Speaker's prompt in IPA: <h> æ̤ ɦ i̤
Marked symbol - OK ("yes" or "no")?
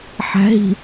no